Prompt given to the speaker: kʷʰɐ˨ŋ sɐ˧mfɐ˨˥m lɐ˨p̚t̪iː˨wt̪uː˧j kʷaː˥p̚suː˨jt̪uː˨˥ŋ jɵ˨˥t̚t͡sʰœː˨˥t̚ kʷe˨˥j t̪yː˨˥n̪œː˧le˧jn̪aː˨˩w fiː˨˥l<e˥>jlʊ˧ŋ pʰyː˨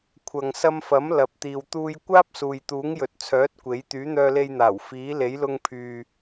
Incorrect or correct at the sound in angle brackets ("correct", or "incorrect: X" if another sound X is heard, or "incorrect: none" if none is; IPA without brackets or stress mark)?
incorrect: e˨˥